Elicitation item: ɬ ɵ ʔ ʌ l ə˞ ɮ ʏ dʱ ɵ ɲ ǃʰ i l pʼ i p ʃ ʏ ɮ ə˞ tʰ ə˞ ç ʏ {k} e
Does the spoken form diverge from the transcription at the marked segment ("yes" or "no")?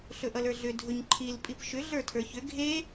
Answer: yes